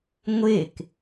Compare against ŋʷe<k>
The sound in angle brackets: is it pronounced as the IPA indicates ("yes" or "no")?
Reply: yes